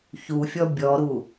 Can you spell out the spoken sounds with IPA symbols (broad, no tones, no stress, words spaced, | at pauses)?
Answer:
çufʲɔ bʲɔɾu